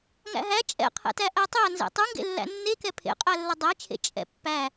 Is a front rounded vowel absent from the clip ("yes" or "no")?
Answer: yes